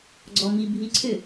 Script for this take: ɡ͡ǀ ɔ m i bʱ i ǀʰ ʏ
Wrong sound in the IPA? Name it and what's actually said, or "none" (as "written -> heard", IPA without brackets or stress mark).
none